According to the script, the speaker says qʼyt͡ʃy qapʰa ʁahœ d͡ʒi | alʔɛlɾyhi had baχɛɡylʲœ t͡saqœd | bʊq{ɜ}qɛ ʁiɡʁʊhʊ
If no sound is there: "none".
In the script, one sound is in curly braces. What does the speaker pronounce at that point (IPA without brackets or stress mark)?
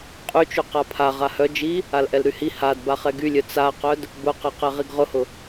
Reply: ɛ